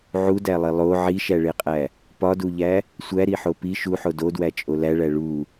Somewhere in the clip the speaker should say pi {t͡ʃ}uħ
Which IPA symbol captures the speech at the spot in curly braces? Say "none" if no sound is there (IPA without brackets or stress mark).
ʃ